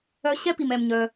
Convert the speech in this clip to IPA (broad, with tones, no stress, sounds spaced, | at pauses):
œ˧ ɕ ɛ˥ p i˩ m ɛ˩ m ɲ œ˩